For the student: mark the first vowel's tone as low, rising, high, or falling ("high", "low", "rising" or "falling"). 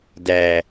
low